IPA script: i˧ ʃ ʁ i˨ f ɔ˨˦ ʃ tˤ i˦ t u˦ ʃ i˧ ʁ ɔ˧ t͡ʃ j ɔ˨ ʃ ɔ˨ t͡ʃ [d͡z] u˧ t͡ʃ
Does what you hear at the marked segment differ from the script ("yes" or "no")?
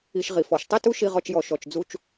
no